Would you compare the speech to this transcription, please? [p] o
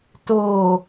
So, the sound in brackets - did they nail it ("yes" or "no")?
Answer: no